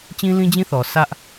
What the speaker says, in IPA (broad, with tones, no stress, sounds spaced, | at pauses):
t͡ɕ ĩ˦ l ĩ˦ d͡ʑ ĩ˦ θ ɔ˨ s ä˦ ʔ